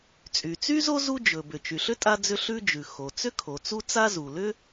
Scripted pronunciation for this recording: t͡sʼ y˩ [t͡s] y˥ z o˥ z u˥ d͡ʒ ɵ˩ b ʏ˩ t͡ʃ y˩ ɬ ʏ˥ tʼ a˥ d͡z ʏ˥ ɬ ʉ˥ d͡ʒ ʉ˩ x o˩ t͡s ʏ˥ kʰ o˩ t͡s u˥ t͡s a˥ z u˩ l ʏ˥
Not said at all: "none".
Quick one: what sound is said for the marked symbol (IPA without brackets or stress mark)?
t͡s